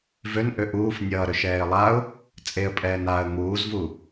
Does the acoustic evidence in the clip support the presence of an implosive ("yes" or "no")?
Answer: no